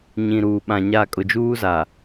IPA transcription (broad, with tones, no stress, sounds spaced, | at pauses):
ɲ ĩ˨ ɾ uː˨ ɓ ã˨ ɲ a˦˨ kʼ ʊ˨ d͡ʒ uː˦ z a˨